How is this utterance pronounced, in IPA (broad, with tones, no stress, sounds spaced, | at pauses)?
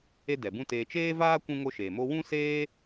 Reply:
e˦ d ɛ˨ b ũ˦ t eː˧ t͡ʃ eː˦ v aː˦ kʷ ũ˦ ŋ o˦ ʃ eː˨ m o˦ w ũ˦ s eː˦